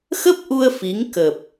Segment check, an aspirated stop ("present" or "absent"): absent